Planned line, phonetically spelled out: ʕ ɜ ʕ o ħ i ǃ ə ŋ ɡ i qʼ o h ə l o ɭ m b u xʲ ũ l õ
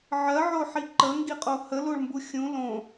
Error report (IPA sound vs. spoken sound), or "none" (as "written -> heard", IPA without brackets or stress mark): none